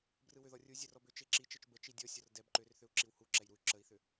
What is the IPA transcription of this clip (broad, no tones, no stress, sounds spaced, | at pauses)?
b r ɯ w ʏ ð ɔ rʲ u zʲ ə r ɔ b ʏ t͡ʃ e ǁ i t͡ʃ ɤ t͡ʃ b ə t͡ʃ i dʲ ɔ sʲ ɔ r d ɛ b ǃ ʏ r θ ʏ u̯ ǁ i w h u ǁ ɛ j ɾ u y̯ ǁ ə i̯ θ ʏ